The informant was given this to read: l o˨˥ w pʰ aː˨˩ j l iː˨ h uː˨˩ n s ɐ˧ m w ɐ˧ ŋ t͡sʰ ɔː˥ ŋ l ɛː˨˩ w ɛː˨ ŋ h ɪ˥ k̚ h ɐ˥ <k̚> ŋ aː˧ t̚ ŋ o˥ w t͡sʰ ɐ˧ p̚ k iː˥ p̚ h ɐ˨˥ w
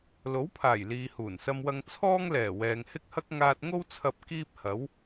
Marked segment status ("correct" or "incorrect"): correct